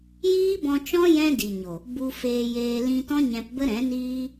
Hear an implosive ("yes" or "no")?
no